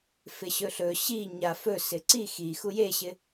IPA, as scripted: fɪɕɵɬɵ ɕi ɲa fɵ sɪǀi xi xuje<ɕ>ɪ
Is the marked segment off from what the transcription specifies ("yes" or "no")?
no